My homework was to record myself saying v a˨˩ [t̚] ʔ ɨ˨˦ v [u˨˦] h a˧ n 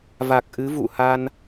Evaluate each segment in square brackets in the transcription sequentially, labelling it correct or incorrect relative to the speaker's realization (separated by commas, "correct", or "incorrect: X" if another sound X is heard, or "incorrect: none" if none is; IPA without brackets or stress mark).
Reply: incorrect: k̚, incorrect: ṵ˧˨